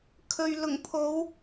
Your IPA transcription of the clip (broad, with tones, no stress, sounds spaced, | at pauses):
kʰ ɵ˨ ɥ l ʊ˨˩ ŋ pʰ o˨˧ w